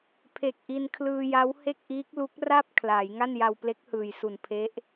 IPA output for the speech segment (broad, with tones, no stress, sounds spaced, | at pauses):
pʰ e˨˩ k̚ ʔ i˧ n kʰ l ɯː˧ j a˦˥ w h e˥˩ k̚ ʔ iː˦˥ k̚ l u˦˥ k̚ r a˥˩ p̚ kʰ l aː˩˦ j ŋ a˥˩ n j a˧ w p l e˦˥ k̚ h ɯː˨˩ j s u˨˩ n pʰ e˦˥ ʔ